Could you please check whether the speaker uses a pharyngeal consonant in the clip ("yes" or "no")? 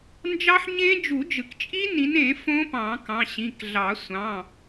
yes